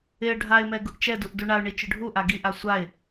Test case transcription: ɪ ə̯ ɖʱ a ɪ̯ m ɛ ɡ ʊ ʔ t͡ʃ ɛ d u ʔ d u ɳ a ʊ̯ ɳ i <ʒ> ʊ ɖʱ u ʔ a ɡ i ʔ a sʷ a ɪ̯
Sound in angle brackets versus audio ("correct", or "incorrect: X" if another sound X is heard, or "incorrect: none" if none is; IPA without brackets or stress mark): incorrect: t͡ʃ